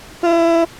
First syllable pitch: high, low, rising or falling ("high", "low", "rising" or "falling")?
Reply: high